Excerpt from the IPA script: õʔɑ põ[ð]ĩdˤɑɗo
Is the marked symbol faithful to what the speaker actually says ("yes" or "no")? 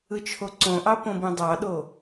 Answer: no